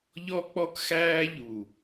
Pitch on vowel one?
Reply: high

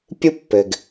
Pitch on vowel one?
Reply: high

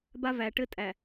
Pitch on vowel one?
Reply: high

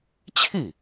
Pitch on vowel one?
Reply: falling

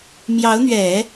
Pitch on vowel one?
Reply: rising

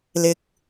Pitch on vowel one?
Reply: low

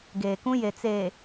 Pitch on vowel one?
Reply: low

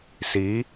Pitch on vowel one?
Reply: rising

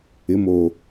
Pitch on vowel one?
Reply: rising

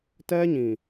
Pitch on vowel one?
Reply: high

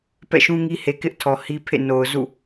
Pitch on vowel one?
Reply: falling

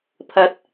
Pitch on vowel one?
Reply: rising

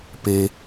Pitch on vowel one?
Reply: low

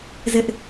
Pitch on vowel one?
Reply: high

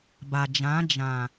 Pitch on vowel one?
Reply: low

